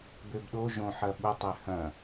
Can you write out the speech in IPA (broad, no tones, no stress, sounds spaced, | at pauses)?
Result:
b ø b ɗ o ʒ õ ħ ɐ ɓ ʊ tˤ ɛ h ɐ̃